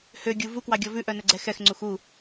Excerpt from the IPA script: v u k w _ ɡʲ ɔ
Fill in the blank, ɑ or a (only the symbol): ɑ